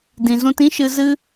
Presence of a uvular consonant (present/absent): absent